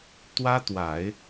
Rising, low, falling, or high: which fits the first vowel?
high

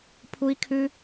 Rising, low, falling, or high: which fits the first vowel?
high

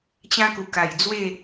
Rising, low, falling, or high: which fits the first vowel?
high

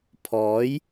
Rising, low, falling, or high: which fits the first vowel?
rising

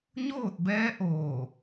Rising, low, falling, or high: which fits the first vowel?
falling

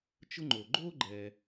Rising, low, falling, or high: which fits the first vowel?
high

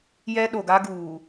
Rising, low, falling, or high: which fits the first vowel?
high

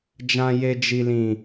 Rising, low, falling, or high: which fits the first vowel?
high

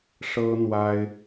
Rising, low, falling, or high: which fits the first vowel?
high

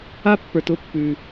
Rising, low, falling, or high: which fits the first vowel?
high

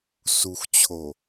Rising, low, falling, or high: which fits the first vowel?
low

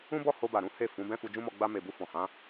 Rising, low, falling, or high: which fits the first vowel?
high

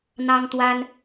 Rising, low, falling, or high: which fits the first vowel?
high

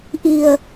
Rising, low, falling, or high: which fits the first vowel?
low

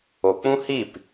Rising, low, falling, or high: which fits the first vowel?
low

